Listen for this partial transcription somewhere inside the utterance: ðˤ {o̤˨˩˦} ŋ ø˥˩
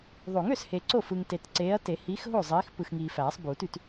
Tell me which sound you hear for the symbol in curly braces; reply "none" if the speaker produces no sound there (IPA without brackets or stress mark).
o˨˩˦